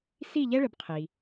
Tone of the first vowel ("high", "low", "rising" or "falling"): falling